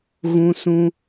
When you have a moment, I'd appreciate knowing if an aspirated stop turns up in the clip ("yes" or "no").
no